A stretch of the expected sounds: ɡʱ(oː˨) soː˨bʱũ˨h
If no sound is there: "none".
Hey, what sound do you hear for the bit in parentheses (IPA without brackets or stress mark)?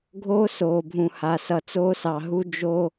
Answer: oː˦